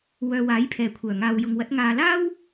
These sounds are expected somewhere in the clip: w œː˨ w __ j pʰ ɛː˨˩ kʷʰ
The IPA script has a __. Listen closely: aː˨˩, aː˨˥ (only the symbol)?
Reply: aː˨˥